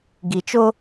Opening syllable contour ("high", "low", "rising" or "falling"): low